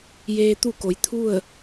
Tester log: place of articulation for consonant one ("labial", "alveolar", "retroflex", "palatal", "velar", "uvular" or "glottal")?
palatal